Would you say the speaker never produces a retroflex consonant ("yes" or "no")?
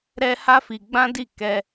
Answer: yes